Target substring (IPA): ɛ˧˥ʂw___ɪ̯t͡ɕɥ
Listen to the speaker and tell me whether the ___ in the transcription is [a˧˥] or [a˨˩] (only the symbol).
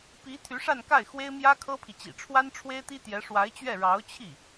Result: a˧˥